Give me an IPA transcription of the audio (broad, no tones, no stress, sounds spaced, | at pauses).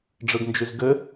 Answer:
ɖ͡ʐ ɯ ɡ n d͡ʒ y z ɡ ɘ